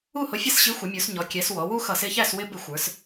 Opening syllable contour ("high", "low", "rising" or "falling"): falling